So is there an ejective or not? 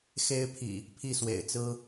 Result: no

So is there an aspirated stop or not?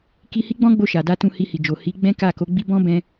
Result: no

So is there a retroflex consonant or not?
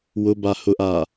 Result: no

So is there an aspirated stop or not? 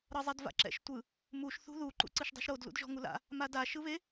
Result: no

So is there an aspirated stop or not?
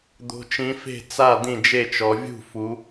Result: no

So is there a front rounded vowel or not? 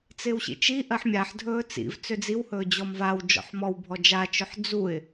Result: yes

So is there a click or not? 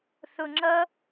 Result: yes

